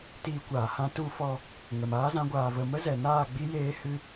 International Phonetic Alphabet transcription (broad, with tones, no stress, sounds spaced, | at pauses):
t iː˧ kʷ aː˨ h ã˦ t u˧ f ɔ˧ | ŋ ə˨ m aː˦ z ã˧ ɡʷ aː˨ v ə˨ m ə˦ z ɛ˨ n aː˦˨ ɡ͡b i˦ j eː˦ h ɨ˦